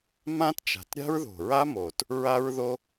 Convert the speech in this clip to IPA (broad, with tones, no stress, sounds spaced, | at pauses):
m ã˥ t t͡ʃ a̤˨˩ t ɾʲ a̤˥ ɹ ð o̤˨˩ ɹ a˥ m o˨˩ t | ɹ a˥ ɹ ð o˥